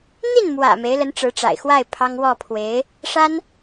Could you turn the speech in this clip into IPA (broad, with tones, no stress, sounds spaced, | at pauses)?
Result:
n̪ i˥˩ n m w ä̰˨˩ m e˧˥ ɪ̯ l ə˧˥ n ʈ͡ʂ ɻ̩˧˥ ʈ͡ʂ a̰˨˩ ɪ̯ x w a˥˩ ɪ̯ pʰ ɑ˥ ŋ w ɔ˥˩ pʰ w e˧˥ ɪ̯ | ʂ a˥ n